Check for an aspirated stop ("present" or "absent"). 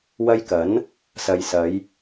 absent